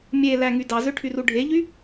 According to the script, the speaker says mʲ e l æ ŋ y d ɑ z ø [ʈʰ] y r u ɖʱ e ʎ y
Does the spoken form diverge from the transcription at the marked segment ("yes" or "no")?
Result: no